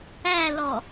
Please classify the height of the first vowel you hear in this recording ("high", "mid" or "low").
low